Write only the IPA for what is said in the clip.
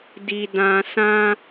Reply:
d i˨ d ã˨ s ã˧

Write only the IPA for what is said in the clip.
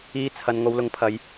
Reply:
iː˨˧ t͡sʰ ɐ˨ n ŋ o˨˧ w l ʊ˨˧ ŋ pʰ ɐ˨˧ j

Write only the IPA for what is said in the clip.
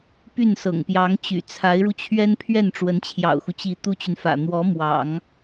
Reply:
p y˥˩ n s ɤ̰˨˩ ŋ p j ɑ˧˥ ŋ t͡ɕ y̰˨˩ t͡sʰ a˧˥ ɪ̯ ɻ u˧ t͡ɕʰ ɥ ɛ˥ n pʰ ɥ ɛ˥˩ n ʈ͡ʂ w ə˧˥ n t͡ɕʰ j ɑ̰˨˩ ʊ̯ x u˦ t͡ɕ i˧˥ t̪ u˥ t͡ɕ y˨ n f ä̰˨˩ n̪ w ɔ˧˥ m w ɑ̰˨˩˦ ŋ

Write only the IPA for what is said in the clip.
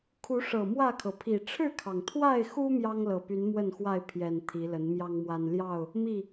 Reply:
kʰ u˨˦ ʂ ɤ˨˩ m w ä˥˨ kʰ ɤ˩ pʰ i˨˩ ʈ͡ʂʰ ɻ̩˥˨ kʰ ɑ˩ ŋ t̪ʰ w a˥˨ ɪ̯ x u˦ m j ɑ˦ ŋ l ɤ˨˩ p y˨˦ n m w ə˥˨ n x w a˥˨ ɪ̯ pʰ j ɛ˨˩ n t̪ʰ i˨˦ l ə˨˦ n m j ɑ˦ ŋ m w a˦ n l j ɑ˥˨ ʊ̯ | m i˥˨

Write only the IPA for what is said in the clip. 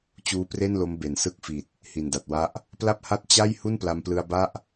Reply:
t͡ɕ uː˦˥ p r e˥˩ n l o˦˥ m b e˩˦ n s ɯ˦˥ k̚ f i˨˩ t̚ | h i˨˩ n d a˨˩ t̚ w a˦˥ ʔ | p l a˥˩ p̚ h a˥˩ t̚ t͡ɕ a˥˩ j h u˥˩ n p l a˧ m p l ɯ˧ a̯ b a˥˩ ʔ

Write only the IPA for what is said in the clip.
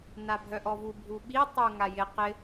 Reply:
n a bʱ œ ʔ ɔ v u bʱ u ɓ i tˤ u ŋ a j ɪ q ɪ

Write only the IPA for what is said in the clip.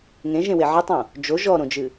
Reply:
ŋ ẽ ʒ ẽ w e ʕ ɨ tˤ õ | d͡ʒ o ʒ ɔ ɾ õ d͡ʒ ɨ

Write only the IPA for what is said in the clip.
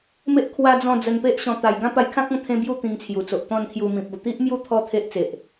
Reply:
m e˦ ʔ kʰ w a˦ d͡z ɔ̃˥˧ d͡z ə˧ n p e˦ ʔ ɕ ɔ̃˧ t̪ a˧ j ɡ ã˦ p a˧ j kʰ ã˦ k̚ ɔ̃˧ t̪ʰ ẽ˦ b j u˥˧ t̪ ĩ˧ ŋ t͡sʰ j u˨˩ t͡s o˨ ʔ t̪ ɔ̃˥˧ n kʰ j u˧ m ĩ˨ p̚ u˨˩ t̪ i˦ ʔ m j u˦ t̪ʰ ɔ˦ t̪ʰ e˦ ʔ t͡s e˨ ʔ

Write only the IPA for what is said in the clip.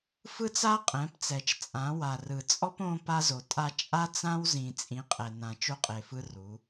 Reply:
f ɯ˦ t͡s a˦ qʼ ɛ̃˨˦ p t͡s ɛ˨ t͡ʃ t͡sʼ ã˨˦ w a˨ r ɯ˨ t͡sʼ ɔ˦ p õ˦ p a˦ z o˨ tʼ a˦ t͡ʃʼ a˦ t͡s ã˦ w z ĩ˨ t͡sʼ ĩ˨˦ qʼ ɛ˨ n ã˨ t͡ʃ o˦ qʼ e˨ f ɯ˦ r u˨˦

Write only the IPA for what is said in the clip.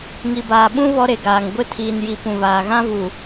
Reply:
ŋ i˨ b aː˨ ɓ ũ˦ β ɔ˦ ɾ e˨ ɡ aː˨ ŋ ɡʷ ɪ˦˨ tʰ iː˨ n j i˨ p ũ˨ β aː˨ ɣ ã˦ v u˨

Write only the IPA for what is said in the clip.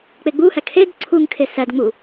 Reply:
k͡p e ɡ͡b u h æ kʰ e d ǀʰ u ŋ kʰ e s æ d ŋ͡m u

